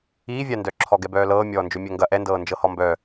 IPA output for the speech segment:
iː vʲ a n d œ ǁʰ ɔ ɡ ɛ b œː l ɤː mʲ ɔː n d͡ʒ ɵ mʲ œ ŋ ɡ ɐ ʔ ɛ n d ɤː n d͡ʒ ɤ h ɔ m b œ

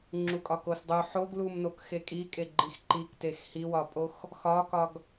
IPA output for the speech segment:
ŋ͡ǁ u kʼ ɒ k o s dˤ u ħ o ɡ l u m n o k x e kʼ i kʼ e ɡ͡ǃ i x ǃ i k t e x h i w ɒ pʼ o x | x ɒ k ɒ ɡ

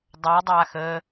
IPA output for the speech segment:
dˤ œ dˤ aː x əː

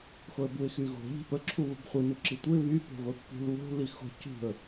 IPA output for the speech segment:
x o ə̯ b u ɪ̯ x y ɣ o̤ ʎ i̤ p ə ǁʰ u β ə̤ b χʷ i n u ǁ i tʷ ə ɪ̯ β y p o̤ ɣ o θ p ṳ l β o̤ l i x o̤ c ṳ ə̯

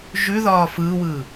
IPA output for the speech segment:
ʒ ʉ ð ɒː f ɯː w ɯː

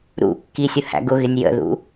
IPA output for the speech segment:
ɾ ṵ kː i sʲ ʊ h æ̰ ɡ ʊ ɣ ɪ nʲ j ə̰ ð ṵ

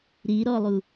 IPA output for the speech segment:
ɾ i ɾ ɔ lˠ u

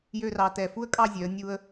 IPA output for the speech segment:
j ø˥˧ r ɑ˧ t ɛ˧˩ f u˥ ə̯ kʼ ɑ˥˧ zʲ œ˩˧ ə̯ nʲ u˧ ə̯

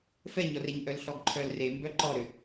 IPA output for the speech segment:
f ɛ ɲ ɔ r e ɲ ʔ œ l ɬ ɔ ɡ ǃʰ œ l r e m b œ ǃ ɔ ɾ ʏ

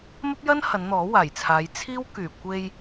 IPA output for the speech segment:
m ɐ˥ p̚ j ɐ˥ n h ɐ˨˧ n n̪ ɔː˨˥ w aː˨˩ j t͡sʰ aː˨˧ j t͡sʰ iː˥ w k yː˨˩ kʷ e˧ j

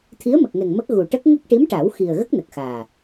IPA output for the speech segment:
t̪ʰ i˧˥ ə̯ m ə˨˩ k̚ ŋ ɛ˨˩ ŋ m ə˦˥ k̚ ɣ u˨˩ ʈ ə˦˥ k̚ ŋ ə˦˥ k̚ ʈ i˧˥ m ʈ a˨˩˦ w x i˨˩ ə̯ ɣ ə˦˥ k̚ n ə˨˩ k̚ x aː˨˩

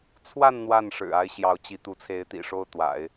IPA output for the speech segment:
t͡sʰ w a˥˧ n n̪ w a˥˩ n ʂ ɻ̩˨˩ a˥ ɪ̯ ɕ j ɑ˧˥ ʊ̯ t͡ɕ i˧˥ t̪ u˧˥ t͡sʰ e˧˥ ɪ̯ t̪ ḭ˨˩ ʂ o˥˩ ʊ̯ t̪ w a̰˨˩˦ ɪ̯

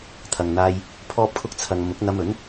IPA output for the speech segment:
t̪ʰ ɐ˨ ŋ n̪ aː˧ j | pʰ ɔː˧ p̚ kʰ ʊ˧ k̚ t͡sʰ ɐ˨ ŋ m ʊ˨˥ k̚ n̪ ɐ˧ m ɵ˨˥ n

